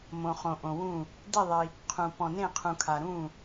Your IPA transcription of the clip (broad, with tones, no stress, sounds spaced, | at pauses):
m õ˩ χ õ˩ ʔ õ˩ w ũ˧˩ | d i˧˩ ðˤ i˩ | qʰ ũ˩ p ɔ̃˩ n ẽ˧˩ qʰ ũ˩ kʰ a˩ ɾ ũ˧˩